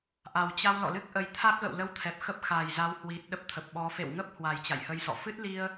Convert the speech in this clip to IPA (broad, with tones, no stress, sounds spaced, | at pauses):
ʔ a˨˩ w t͡ɕ a˧ w l ɔ̰˧˨ l ɨ˦˥ k̚ ʔ ə˨˦ j t̪ʰ a˦˥ k̚ ɣ ə̰˧˨ w l ə˧ w t̪ʰ ɛ˨˩ p̚ x ə˦˥ p̚ x a˨˩ j z a˨˦ w h w i˨˩ t̚ ɗ ə˦˥ p̚ t̪ʰ ə˨˩ p̚ ɓ ɔ˨˦ f ḛ˧˨ w ŋ ə˦˥ p̚ h w a˨˩ j t͡ɕ a̰˧˨ j h ə˧ j s ɔ̰˧˨ f ɨ˦˥ t̚ l i˧ ə̯